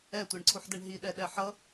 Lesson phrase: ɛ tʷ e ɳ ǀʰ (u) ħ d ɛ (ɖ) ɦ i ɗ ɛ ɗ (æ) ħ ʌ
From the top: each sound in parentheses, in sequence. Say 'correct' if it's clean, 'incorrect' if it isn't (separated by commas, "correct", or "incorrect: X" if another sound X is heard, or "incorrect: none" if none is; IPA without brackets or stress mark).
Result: correct, incorrect: ɳ, incorrect: ɛ